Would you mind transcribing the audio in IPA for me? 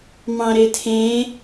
m ɑ̃ ɾ e tʰ ẽː

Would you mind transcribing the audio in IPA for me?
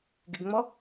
ɡ ɪ ɡ ŋ͡m ɔ

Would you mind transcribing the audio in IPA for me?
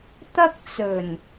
t̪ ɐ˥ k̚ t͡s ɵ˨˩ n

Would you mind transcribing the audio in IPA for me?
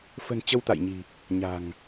f ə̤˨˩ n t͡ɕ ə˧ w t̪ a̰˧˨ j ɲ i̤˨˩ | ɲ a̤˨˩ ŋ

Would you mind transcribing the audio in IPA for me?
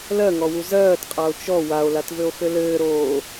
l ɜ ŋ ɔ w u z ɜː t qʼ a o̯ t͡ʃ ɔ w a o̯ l a t v ɘ o̯ x ɘ l ɘː ɾ oː

